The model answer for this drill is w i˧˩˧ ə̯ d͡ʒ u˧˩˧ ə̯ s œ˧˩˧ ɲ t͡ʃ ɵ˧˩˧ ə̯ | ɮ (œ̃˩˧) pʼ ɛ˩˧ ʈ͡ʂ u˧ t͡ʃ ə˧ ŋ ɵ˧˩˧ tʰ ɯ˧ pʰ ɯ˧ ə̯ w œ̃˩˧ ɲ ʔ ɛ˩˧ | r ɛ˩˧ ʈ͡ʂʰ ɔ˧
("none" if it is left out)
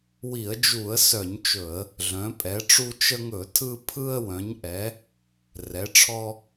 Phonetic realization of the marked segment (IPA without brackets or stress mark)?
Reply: œ̃˩˧